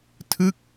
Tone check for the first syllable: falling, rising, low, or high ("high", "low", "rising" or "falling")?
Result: falling